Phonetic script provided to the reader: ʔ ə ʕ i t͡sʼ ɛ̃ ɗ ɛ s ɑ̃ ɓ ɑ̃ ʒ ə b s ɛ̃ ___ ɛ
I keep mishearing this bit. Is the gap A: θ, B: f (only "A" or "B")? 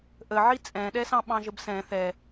A